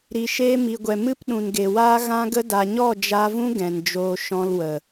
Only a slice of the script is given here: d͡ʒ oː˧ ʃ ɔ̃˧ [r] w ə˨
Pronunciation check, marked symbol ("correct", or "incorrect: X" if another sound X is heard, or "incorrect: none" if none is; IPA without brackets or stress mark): incorrect: l